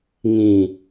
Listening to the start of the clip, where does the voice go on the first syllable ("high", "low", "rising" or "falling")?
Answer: low